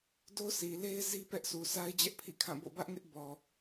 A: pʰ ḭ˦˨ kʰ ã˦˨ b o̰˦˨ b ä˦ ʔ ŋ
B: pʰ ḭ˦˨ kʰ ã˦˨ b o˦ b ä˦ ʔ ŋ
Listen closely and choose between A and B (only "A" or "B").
A